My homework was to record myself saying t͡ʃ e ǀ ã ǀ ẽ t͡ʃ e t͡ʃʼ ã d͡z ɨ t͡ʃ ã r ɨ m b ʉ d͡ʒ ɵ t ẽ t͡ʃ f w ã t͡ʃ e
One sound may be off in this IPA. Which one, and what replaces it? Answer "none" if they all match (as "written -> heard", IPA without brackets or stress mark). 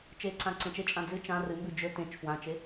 none